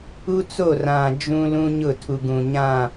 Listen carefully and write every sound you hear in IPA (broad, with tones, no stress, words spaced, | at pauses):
u˦t͡so˦˨ rã˨ d͡ʒũ˦lũ˦ɲʊ˦˨ tʰu˨ɡũ˨ɲã˦˨